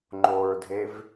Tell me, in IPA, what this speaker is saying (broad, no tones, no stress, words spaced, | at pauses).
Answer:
ŋ͡ǃoɹdʱev